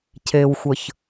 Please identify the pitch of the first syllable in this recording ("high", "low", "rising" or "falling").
low